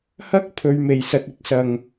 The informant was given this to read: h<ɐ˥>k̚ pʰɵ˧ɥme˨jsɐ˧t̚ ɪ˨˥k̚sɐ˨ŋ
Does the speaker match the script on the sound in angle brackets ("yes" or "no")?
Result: yes